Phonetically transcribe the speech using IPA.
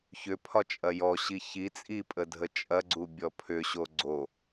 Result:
çʏpʰɒt͡ʃʼɐ jɔɕi çi t͡sʼipʼədʱə t͡ʃʼɐɡ͡ǀubʲɔ pʰʏɕo ɡ͡ǀo

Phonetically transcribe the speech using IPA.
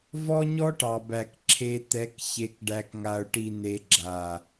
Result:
vɔ˦ɲɔ˦ʈɑ˨bæ˨k ǁʰe˨ t̪ɛ˨˦kçe˨k ɖæ˨kŋa˨ʊ̯ʈi˨ne˨ ɡ͡ǁa˨

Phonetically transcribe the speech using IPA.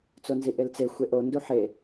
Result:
t͡sonziʔelt͡se xʷeʔo nduħe

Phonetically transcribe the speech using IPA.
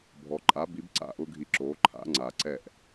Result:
bʱɔ˩ǃʼa˩˥bi˩˥b ǀa̰˥˩ʔʊ˥ɡʱi˧ǁoː˩˥ ǃʰa̰˩˥ ŋ͡ǀa˩ǀɛ˥˩ʔ

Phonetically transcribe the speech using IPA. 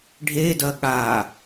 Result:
ɖʱedɐ ɠaː

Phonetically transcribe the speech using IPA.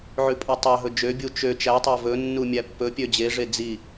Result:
ʕʉpʼotˤɑ ɦɵd͡ʒø bʲut͡ʃø t͡ʃætˤæ vɵ nːumʲæpːɵ pʲød͡ʑeʐe d͡zi

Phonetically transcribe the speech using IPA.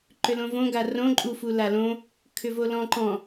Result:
ǃʏlõvõ ɡarõ ǃʼu fulalõ | kʰʏvolɔ̃ ǃɔ̃

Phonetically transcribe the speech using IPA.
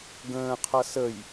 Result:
ɡə̃ː qʰʌsəj

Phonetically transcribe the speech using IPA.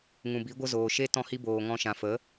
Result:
ŋũ˨bi˨˦ɡʷə˦ zoː˨ʃe˦ tɔ̃˧hi˧ boː˨ ŋɔ̃˧ʃã˨fə˨˦

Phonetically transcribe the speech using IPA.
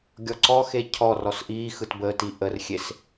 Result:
ɡʲɔǀɔxe cʰɔr ɔsʔiːxɯt bəːtiʔərxʲes

